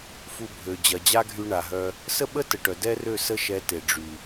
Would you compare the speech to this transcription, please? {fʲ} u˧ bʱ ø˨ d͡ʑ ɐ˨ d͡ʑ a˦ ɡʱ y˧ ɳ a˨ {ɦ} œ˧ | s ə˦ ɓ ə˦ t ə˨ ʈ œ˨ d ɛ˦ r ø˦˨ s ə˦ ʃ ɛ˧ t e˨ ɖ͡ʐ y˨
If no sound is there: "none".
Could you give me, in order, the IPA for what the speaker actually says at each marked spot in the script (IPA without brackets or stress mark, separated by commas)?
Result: f, ɦ